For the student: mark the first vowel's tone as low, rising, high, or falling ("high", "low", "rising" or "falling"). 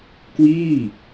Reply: falling